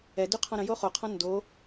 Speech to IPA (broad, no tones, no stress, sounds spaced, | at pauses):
ɛ d y qʰ ɔ̃ ɾ ə̃ j o χ o qʰ ɔ̃ n d o